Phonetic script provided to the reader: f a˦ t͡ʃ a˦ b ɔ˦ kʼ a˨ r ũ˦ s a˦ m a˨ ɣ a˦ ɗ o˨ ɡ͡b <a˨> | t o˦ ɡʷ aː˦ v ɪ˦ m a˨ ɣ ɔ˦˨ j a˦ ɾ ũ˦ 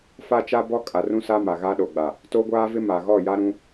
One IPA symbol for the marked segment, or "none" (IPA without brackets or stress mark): a˨